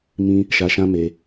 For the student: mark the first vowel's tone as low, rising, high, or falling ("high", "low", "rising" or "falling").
high